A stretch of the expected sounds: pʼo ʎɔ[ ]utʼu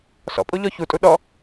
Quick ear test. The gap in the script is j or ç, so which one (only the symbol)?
ç